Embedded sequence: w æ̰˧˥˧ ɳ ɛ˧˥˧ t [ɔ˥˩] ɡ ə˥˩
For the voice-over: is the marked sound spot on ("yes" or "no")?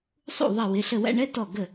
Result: yes